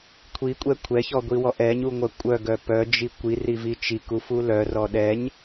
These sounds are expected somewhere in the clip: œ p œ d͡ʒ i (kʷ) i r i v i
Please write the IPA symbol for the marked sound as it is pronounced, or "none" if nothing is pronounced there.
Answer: kʷ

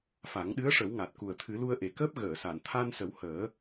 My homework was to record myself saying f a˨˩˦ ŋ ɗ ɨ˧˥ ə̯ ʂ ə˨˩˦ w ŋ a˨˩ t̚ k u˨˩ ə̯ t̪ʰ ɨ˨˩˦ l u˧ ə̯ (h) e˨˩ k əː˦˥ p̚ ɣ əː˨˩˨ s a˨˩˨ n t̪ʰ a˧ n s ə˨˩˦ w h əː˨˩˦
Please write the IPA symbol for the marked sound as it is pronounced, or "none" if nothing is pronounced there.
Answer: ʔ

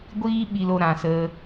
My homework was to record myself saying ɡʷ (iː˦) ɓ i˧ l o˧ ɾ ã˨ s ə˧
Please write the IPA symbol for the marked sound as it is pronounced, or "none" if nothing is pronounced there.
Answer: iː˦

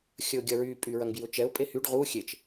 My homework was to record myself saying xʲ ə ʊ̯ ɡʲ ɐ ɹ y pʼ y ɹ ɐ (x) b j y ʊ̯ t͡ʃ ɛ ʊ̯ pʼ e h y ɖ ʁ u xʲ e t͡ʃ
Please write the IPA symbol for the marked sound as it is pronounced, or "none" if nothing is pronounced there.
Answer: ŋ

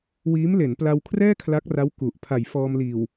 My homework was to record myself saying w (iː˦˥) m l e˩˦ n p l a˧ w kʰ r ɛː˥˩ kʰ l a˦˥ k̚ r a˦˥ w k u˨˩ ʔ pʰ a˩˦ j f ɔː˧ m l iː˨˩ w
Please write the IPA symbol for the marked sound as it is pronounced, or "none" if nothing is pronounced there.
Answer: iː˦˥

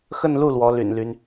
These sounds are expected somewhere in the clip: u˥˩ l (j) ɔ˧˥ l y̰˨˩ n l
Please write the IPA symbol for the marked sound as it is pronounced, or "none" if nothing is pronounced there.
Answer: w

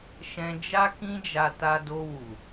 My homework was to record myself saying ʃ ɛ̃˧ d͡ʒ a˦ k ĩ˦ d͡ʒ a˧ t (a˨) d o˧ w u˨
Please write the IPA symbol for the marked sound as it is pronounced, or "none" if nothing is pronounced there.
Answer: a˧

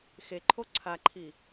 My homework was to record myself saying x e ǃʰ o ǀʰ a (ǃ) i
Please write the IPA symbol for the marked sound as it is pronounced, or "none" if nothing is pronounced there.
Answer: ǃʰ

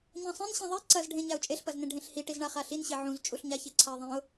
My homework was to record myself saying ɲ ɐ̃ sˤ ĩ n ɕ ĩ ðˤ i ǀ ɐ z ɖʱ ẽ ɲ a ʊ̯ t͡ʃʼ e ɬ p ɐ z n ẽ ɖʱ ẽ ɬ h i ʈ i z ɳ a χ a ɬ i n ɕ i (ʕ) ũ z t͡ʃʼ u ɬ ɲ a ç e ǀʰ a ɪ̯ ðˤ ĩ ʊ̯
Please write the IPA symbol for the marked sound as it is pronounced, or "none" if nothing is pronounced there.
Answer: ʕ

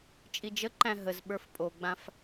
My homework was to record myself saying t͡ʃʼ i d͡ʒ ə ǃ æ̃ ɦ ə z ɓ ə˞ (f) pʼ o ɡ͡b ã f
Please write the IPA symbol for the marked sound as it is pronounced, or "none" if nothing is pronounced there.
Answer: f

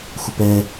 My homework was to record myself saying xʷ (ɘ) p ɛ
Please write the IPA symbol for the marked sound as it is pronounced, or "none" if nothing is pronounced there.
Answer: ɘ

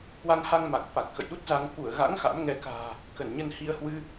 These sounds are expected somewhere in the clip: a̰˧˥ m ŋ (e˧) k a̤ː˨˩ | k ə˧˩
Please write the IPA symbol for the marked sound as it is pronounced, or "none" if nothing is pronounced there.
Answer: ɛ˧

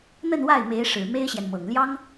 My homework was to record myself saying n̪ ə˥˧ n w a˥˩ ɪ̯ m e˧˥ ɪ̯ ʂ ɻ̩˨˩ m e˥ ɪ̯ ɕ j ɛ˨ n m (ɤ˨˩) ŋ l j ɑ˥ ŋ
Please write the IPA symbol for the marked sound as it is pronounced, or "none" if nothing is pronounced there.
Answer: ɤ˨˩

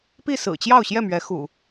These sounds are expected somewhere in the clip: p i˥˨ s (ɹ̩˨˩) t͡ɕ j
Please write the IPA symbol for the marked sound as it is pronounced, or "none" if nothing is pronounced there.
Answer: ɹ̩˨˩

